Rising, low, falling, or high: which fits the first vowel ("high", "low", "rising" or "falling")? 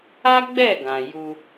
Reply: high